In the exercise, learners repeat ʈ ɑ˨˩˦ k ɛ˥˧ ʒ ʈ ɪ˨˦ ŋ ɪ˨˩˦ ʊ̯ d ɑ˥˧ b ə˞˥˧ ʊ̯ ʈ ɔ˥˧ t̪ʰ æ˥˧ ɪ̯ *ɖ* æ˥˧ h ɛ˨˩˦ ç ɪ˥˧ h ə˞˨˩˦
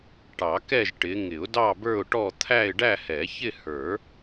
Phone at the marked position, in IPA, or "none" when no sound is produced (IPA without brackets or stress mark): ɖ